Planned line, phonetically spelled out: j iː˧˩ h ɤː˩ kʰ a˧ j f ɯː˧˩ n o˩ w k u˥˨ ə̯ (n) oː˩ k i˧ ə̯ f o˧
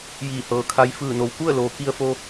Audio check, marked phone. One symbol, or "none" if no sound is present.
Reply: l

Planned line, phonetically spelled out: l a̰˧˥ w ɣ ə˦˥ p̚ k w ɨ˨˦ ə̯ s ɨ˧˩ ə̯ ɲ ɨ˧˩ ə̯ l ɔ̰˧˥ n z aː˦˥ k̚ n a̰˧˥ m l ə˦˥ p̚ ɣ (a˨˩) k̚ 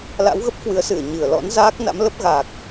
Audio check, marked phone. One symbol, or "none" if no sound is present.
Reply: a˨˩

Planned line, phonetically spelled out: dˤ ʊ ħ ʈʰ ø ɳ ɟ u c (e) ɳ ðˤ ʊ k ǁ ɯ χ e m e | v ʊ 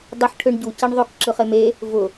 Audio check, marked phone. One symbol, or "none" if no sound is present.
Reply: e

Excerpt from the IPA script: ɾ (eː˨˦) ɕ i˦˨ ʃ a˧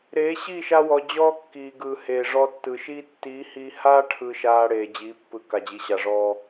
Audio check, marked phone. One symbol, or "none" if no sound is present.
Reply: eː˨˦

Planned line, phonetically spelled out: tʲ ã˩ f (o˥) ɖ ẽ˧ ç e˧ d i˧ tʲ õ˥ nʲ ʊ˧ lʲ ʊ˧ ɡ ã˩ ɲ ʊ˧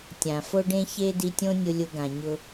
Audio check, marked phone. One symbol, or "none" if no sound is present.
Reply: o˧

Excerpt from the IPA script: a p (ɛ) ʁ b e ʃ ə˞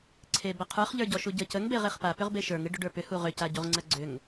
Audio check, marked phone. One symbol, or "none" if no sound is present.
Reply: ʏ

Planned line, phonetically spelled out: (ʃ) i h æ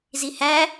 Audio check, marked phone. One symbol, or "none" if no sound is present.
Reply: z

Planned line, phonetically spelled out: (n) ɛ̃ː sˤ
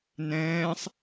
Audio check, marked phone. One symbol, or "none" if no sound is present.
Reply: n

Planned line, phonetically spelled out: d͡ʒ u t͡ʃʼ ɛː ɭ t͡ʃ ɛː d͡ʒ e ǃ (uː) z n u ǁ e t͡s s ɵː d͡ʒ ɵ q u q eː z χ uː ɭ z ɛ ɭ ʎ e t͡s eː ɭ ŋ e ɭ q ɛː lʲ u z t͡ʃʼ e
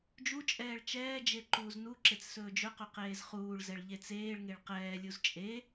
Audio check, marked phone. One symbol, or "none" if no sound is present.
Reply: uː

